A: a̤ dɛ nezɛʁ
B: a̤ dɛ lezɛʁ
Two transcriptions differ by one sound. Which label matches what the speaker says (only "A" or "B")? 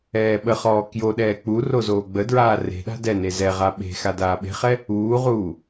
A